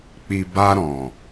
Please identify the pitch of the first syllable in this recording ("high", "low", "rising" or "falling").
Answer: low